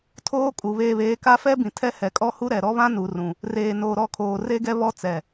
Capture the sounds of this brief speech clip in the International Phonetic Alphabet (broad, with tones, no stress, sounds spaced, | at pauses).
tʰ oː˦ kʼ u˨ β eː˨ β eː˨ k a˦ f ɛ˦ b ĩ˨ tʰ ɛ˦ h ɛ˨ kʼ ɔ˦ h u˦ ɾ ɛ˨ ɾ ɔ˦ β ã˦ n u˨ r ũ˨ | r eː˨ n oː˨ ɾ ɔ˦˨ kʰ oː˨ r e˦ ɡ ɛ˦ β ɔ˦ t͡s ɛ˨